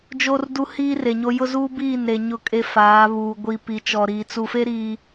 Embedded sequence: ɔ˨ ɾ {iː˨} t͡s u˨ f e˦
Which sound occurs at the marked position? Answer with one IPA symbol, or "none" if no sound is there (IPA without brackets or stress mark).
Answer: iː˨